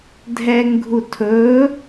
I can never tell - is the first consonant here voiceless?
no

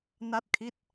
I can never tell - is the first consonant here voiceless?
no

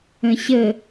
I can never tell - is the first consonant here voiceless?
yes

